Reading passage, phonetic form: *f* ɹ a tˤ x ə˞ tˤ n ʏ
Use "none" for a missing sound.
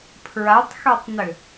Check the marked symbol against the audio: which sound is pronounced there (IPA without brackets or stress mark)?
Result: pʰ